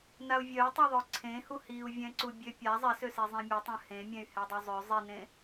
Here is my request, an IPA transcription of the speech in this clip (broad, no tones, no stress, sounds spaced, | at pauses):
n a u̯ vʲ œ y̯ tˤ u ðˤ œ ǀʰ ẽ h u h i u̯ vʲ ɛ̃ ǀ u bʲ ø pʲ a zˤ ɛ s ø s e zˤ ẽ mʲ e tˤ œ̃ h ẽ mʲ ɛ̃ y̯ h ɛ dˤ œ zˤ ø zˤ i n ẽ